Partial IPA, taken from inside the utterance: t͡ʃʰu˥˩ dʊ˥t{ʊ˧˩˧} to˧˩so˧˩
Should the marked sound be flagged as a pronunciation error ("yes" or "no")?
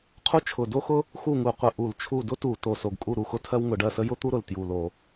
yes